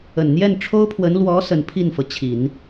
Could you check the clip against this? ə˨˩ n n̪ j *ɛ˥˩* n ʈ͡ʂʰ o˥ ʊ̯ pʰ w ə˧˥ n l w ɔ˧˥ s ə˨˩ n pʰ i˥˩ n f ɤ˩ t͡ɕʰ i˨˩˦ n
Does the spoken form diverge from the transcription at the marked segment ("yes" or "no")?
no